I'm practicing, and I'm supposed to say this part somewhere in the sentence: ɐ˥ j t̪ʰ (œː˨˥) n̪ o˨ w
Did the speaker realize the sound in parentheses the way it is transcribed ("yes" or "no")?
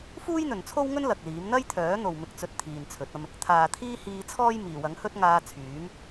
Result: yes